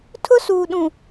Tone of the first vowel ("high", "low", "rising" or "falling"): high